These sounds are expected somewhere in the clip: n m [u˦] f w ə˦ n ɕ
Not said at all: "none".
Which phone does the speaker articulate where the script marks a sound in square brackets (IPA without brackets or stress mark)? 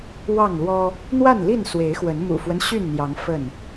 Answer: ṵ˨˩